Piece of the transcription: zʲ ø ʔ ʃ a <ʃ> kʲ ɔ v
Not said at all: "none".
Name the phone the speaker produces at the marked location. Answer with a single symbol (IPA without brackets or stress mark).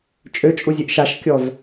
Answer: ʃ